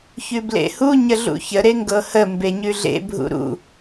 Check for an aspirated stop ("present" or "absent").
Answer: absent